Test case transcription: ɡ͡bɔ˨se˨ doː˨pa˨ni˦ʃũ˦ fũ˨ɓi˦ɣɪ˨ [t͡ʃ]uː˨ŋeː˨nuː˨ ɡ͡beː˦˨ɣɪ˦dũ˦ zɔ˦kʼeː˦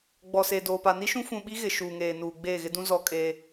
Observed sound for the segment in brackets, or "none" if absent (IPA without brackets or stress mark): ʃ